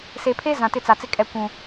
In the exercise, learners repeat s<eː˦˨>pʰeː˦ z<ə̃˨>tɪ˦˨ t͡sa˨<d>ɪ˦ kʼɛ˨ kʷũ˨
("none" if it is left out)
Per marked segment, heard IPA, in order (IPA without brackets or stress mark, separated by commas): eː˨, ã˨, t͡s